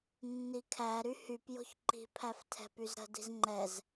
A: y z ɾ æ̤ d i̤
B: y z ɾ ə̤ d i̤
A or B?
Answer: B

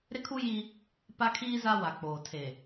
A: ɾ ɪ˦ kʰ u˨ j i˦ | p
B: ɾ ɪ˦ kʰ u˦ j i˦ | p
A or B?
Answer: B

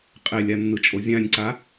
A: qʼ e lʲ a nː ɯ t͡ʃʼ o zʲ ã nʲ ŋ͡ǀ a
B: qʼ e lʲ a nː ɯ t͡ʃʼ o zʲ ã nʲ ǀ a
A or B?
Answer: B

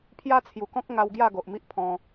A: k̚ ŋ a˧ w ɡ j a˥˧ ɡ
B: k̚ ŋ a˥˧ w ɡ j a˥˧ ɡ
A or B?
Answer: A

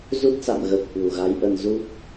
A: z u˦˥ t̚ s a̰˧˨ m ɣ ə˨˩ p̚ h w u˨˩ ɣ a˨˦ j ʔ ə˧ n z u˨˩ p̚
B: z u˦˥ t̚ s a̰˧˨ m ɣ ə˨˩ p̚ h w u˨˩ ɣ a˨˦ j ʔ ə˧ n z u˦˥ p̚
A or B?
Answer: B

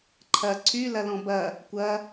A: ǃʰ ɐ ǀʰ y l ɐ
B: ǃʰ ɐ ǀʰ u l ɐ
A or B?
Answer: A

